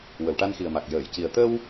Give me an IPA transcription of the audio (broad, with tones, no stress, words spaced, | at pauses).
wə˨˩˨wʈa˧nxi˨˩ə̯ma˨˩k̚ jəː˨˩˨j ci˨˩ə̯ t̪ə˧w